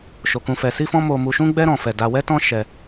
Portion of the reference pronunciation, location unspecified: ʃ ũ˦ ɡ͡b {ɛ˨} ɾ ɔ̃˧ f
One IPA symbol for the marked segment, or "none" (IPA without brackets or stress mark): ɛ˦